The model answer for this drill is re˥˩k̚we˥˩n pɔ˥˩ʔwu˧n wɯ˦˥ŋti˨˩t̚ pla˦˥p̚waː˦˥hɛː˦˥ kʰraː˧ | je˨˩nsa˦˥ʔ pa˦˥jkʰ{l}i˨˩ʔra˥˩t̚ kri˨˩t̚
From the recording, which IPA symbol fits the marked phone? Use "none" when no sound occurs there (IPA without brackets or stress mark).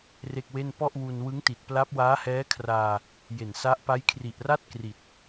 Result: r